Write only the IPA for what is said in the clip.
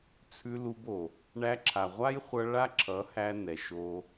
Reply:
t͡sʰ ʉ˧ l u˧ b o˨ | ɳ æ˧ ǁʰ a˨ ʁʷ a˦ j χʷ ʌ˧ ɭ a˦ ǁʰ ʌ˨˦ h æ˧ n ɛ˨ ʃ o˧

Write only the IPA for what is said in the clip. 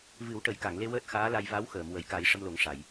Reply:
v ɨ˨˩˦ w ʈ ə˨˩˦ j k a˨˩˨ ŋ l e˧ w əː˦˥ t̚ x aː˧˥ l a˧ j v a˧˥ w x əː˨˩˨ m w ə˨˩˨ j k a˨˩˦ j ʂ ə˧ m l o˨˩˦ ŋ ʂ a˨˩˨ j

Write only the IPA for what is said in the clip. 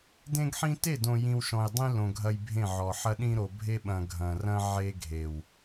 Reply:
d ẽ˦ ɡ ħ ĩ˦ t e˦˨ d õ˨ j ĩ˨ w ʃ ɔ̃˨ j dˤ ĩ˦ l õ˨ ɡʱ ɐ˦ j bʱ ẽ˦˨ ʕ ɔ˨ ħ ɐ˦ ɗ ĩ˦ ɾ o˨ bʱ e˦ ɓ ɐ̃˨ ɡʱ ɐ̃˨ r ɐ̃˦ ʕ e˦ ɡʱ e˨ w

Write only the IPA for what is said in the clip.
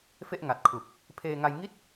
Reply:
f e˥˩ ʔ ŋ a˨˩ t̚ kʰ u˨˩ k̚ | pʰ eː˧ ŋ a˧ j ŋ i˥˩ t̚

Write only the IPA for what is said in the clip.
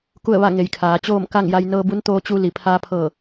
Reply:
k u˥˨ ə̯ ʋ a˥˨ ŋ e˧˩ j kʰ aː˩˧ t͡ɕ oː˥˨ m k a˥˨ ŋ j a˧ j n ɤː˧ b u˧˥ n t̪ oː˧ t͡ɕ u˧ l i˩ pʰ aː˧ pʰ ɤː˧˩

